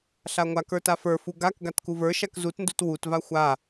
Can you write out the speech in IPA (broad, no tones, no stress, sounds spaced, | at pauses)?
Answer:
ɬ a ŋʷ a k ə˞ t a f ə˞ f u ɡ a k ɡ a t k u v ə˞ ʃ a k z u t n d u t w u t v a xʷ a